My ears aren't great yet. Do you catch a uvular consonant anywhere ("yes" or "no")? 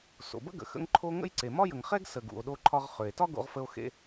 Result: yes